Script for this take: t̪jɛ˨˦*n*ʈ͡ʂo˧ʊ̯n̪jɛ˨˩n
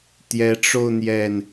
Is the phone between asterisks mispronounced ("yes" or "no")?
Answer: yes